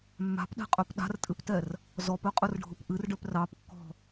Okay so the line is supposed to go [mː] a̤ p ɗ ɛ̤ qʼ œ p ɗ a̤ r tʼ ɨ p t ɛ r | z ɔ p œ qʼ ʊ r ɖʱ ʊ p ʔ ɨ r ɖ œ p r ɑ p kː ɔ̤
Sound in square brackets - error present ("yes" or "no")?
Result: no